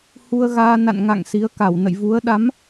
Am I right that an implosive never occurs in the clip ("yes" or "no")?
no